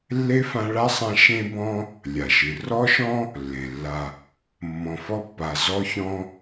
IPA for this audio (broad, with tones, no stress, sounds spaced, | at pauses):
lː e˥ f ã˦ ɭ a˥ sˤ ã˦ ʃ ẽ˥ b ɔ̃˥ | lʲ a˩ ʃ ɨ˩ r ɔ˥ ʃ ɔ̃˥ | lː ẽ˩ lː a˨ | mː ɔ̃˨ f ɔ˦ pː a˨ z ɔ˦ ç ɔ̃˦